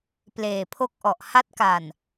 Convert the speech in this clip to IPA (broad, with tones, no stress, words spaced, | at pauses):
pleː˨˩pʰo˥˩k̚ʔɔ˨˩ʔ ha˦˥t̚ka˨˩n